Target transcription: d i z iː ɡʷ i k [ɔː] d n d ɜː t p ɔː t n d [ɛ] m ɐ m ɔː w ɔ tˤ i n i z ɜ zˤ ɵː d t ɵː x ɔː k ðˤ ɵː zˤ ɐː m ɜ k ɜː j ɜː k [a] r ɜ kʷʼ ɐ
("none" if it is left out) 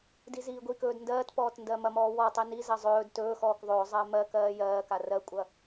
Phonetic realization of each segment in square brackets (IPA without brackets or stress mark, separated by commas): ɵː, ɜ, a